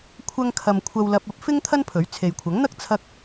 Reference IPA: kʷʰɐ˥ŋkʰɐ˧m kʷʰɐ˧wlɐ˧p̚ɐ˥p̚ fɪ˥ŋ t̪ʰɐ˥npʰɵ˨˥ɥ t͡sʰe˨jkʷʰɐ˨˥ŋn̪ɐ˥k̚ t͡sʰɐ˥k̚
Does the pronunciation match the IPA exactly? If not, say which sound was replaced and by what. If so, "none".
none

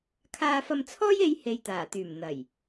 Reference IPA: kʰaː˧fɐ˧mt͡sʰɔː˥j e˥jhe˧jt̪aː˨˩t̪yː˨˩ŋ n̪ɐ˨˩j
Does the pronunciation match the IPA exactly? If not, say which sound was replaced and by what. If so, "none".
ŋ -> m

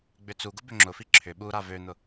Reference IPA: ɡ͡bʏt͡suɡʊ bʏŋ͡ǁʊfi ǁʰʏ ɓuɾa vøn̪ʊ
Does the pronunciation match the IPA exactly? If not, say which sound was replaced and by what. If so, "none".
none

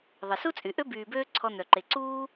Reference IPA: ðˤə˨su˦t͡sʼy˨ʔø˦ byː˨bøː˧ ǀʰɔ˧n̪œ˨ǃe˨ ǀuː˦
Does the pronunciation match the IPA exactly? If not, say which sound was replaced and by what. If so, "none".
none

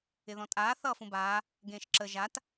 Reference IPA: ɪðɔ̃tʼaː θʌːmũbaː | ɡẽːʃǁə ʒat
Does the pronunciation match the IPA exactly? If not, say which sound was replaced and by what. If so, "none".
m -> f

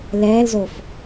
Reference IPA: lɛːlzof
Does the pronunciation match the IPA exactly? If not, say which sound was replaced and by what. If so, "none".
none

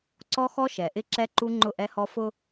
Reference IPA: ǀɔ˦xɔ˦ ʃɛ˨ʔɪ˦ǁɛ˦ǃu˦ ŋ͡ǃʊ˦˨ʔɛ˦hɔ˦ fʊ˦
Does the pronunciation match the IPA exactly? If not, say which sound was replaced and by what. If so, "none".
none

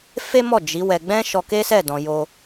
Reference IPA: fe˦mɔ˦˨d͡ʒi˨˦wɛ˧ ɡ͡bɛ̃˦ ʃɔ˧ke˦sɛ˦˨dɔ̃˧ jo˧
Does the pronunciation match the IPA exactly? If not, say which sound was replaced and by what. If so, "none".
o˧ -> o˦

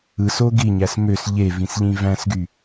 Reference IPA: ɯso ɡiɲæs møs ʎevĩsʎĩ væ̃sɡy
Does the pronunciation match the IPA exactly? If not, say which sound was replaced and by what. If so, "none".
none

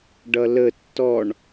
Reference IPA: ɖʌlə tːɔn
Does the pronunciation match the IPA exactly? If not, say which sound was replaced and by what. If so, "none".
n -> ɳ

